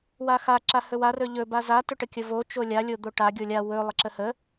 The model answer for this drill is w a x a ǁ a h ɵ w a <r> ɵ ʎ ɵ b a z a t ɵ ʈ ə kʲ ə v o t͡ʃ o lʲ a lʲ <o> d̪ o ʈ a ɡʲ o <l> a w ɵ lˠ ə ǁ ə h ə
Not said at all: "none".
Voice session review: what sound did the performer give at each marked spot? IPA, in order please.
r, o, lʲ

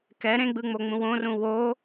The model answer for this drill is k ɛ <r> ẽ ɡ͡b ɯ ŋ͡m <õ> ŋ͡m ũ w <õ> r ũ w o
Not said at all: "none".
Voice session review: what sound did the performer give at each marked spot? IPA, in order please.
ɾ, o, õ

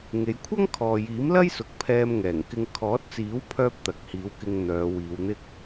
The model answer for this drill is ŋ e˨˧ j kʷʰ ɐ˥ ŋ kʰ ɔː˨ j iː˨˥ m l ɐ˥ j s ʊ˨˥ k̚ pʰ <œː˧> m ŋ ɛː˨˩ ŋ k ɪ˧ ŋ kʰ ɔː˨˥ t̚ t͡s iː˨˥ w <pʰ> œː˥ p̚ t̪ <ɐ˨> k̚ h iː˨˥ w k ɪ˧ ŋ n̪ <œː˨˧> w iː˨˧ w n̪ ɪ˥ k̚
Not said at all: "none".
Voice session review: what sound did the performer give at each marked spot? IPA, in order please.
ɛː˧, pʰ, ɐ˨, œː˨˧

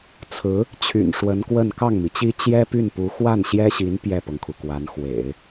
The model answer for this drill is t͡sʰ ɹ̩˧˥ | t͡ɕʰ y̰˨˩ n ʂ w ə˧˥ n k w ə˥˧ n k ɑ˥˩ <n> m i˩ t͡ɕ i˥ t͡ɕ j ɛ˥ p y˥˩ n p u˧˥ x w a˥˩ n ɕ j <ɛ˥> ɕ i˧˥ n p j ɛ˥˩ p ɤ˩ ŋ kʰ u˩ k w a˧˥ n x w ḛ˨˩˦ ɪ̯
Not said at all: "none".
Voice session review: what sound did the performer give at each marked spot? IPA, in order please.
ŋ, ɛ˥

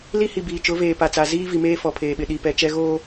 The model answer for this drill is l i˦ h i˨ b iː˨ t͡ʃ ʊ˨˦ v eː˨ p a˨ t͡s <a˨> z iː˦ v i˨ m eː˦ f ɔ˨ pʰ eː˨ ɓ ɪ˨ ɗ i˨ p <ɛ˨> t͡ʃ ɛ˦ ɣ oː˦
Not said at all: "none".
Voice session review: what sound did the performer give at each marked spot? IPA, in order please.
a˨, ɛ˨

